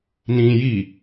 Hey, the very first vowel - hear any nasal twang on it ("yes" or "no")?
yes